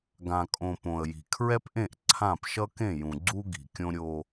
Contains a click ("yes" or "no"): yes